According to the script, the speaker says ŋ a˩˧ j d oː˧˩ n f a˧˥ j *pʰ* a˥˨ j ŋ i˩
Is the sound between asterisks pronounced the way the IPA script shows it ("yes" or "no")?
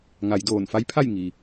yes